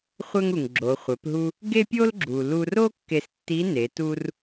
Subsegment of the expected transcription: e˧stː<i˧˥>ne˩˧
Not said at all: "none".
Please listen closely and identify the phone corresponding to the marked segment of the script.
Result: i˧˥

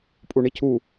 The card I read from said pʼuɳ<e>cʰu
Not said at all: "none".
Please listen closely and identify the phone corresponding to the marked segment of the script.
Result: i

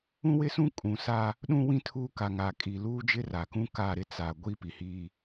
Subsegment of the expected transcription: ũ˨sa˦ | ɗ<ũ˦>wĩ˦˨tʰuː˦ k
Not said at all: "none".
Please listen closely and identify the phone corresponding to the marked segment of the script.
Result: ũ˦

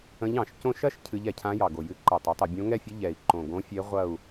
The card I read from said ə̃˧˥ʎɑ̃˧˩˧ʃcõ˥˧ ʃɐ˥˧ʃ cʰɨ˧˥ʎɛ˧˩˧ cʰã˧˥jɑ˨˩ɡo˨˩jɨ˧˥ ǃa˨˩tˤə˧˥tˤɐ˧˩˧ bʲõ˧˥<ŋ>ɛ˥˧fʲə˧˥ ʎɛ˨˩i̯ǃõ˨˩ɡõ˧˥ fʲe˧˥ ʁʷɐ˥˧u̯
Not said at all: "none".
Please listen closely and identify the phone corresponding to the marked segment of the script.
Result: ŋ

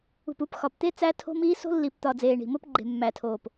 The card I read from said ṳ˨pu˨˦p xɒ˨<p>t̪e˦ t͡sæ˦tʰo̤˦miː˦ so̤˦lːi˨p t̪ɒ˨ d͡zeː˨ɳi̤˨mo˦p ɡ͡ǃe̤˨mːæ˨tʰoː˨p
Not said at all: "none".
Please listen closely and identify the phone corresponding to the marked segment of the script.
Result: p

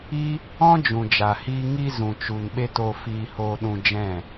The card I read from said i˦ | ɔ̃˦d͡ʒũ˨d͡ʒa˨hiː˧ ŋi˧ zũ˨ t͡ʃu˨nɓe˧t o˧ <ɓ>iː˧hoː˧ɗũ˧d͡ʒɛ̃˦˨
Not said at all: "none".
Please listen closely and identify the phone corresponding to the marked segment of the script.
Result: f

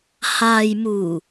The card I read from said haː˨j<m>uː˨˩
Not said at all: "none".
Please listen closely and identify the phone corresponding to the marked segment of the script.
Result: m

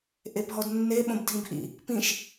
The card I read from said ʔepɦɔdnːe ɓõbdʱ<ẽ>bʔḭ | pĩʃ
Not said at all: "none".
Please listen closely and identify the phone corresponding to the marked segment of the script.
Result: ĩ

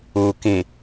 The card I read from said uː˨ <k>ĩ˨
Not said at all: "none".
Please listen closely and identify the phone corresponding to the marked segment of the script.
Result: k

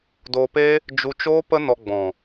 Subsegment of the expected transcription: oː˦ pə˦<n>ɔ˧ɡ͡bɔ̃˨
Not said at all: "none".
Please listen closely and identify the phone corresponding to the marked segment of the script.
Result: n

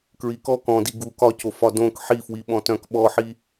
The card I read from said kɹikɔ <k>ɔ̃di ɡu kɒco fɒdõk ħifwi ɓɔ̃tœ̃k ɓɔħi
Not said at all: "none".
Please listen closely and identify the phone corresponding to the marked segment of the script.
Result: k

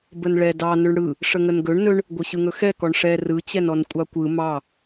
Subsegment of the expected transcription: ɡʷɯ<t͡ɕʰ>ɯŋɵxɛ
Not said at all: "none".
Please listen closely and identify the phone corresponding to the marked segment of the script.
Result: ɕ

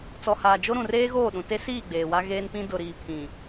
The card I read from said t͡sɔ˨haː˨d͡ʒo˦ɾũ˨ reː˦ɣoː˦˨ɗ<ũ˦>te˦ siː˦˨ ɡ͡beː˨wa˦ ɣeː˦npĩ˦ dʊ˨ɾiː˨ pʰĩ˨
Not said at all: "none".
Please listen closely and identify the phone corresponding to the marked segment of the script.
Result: ũ˨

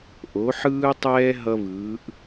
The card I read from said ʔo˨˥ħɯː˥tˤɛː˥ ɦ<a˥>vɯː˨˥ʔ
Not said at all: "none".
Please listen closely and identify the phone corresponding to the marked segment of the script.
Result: ʌ˥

